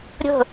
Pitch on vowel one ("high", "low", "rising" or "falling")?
falling